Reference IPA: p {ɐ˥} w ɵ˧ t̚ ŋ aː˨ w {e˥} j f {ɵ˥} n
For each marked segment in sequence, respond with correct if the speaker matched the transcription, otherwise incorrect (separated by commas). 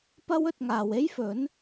correct, correct, incorrect